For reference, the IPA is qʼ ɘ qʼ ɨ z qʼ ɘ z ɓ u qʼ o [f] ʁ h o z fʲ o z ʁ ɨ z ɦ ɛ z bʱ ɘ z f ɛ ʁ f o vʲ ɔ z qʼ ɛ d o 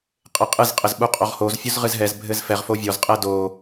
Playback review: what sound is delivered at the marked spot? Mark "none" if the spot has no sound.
none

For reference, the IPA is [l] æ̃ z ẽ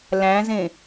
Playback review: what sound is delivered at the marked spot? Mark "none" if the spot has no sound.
l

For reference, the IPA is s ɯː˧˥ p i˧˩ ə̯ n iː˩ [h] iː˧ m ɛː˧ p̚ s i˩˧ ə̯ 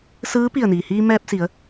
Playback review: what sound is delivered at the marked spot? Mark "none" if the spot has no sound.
h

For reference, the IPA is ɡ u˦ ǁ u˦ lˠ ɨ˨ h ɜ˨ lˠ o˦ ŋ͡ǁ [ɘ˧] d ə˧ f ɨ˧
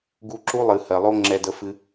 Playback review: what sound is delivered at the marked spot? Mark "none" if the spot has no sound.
ɛ˧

